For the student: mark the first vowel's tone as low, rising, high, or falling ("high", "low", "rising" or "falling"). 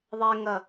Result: high